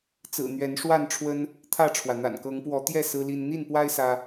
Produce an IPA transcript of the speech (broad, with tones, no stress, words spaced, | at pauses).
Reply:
t͡sɹ̩˨˩n̪ɥɛ˨˦nʂwa˥˨nʈ͡ʂʰwə˦n | t̪ʰä˥˨ʈ͡ʂʰwä˩ n̪a̰˨˩nkɤ˨˦ŋpwɔ˨˦ t̪jɛ˥˨ sɹ̩˦li˦n n̪i˥˨npwa˦ɪ̯ sä˦